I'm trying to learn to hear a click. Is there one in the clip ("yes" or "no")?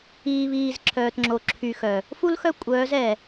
yes